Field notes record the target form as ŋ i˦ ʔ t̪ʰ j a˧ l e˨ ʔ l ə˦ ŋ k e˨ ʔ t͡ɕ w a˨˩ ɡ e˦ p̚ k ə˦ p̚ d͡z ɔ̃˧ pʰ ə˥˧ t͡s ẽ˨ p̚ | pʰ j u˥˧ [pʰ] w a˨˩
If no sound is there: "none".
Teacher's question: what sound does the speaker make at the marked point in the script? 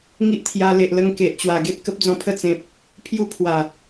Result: pʰ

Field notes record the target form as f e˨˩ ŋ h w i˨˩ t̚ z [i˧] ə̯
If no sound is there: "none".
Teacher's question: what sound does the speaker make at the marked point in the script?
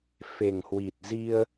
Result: i˧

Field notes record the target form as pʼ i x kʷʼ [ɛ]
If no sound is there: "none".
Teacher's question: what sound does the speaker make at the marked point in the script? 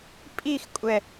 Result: ɛ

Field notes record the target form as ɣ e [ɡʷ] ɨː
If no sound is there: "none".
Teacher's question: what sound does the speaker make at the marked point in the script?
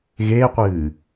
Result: qʷ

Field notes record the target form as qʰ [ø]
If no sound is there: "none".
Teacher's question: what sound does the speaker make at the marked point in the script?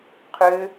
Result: ø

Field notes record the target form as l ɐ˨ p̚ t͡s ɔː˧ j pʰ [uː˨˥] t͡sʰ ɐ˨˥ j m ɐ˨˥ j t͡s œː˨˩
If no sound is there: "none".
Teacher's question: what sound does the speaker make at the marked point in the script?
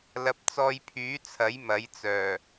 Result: yː˨˥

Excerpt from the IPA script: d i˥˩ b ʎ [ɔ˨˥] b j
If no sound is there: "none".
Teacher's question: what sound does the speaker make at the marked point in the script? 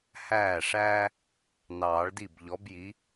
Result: ɔ˨˥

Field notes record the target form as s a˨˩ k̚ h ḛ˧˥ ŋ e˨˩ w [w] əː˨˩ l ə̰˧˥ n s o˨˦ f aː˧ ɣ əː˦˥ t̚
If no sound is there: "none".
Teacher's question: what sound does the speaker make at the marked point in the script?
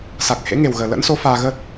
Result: ɣ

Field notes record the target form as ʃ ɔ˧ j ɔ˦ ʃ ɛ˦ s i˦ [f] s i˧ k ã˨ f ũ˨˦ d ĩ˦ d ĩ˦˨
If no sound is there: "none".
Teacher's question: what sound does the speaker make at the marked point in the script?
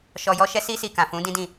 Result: none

